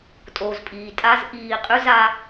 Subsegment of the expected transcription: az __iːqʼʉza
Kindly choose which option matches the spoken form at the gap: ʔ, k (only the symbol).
ʔ